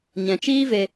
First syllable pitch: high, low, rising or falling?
low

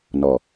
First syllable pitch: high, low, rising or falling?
low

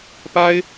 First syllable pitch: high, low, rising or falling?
high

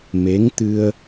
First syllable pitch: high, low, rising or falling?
rising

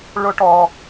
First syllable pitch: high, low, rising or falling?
rising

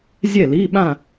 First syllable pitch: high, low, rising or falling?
falling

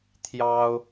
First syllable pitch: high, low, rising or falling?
high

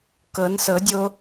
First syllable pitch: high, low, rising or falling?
rising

